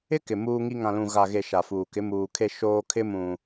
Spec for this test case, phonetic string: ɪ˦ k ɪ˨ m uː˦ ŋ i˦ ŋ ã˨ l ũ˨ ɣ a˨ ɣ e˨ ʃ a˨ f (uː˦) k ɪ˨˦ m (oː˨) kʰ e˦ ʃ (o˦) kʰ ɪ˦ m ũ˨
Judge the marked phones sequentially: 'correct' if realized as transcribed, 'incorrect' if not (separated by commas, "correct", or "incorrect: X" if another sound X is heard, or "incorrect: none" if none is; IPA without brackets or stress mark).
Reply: incorrect: uː˨, incorrect: uː˨, incorrect: oː˦